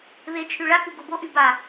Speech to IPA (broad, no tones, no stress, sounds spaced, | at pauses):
β e t͡ʃʰ y ɭ a k u ɡ o b o ʔ y b a